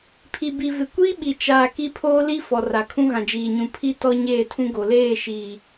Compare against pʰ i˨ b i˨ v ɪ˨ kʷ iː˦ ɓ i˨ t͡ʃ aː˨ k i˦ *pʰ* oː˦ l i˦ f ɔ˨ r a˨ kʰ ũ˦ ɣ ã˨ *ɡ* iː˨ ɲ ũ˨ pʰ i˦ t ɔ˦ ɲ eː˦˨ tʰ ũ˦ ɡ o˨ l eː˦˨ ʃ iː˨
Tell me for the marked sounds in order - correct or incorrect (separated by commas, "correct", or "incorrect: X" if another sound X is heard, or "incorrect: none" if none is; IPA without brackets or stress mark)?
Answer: correct, incorrect: d͡ʒ